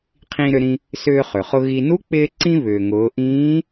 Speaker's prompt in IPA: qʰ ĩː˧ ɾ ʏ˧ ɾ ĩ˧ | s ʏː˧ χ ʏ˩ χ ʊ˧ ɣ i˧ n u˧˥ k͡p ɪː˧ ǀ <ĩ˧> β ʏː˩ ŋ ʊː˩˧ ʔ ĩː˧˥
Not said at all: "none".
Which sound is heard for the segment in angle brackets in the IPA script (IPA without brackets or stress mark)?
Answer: ĩ˧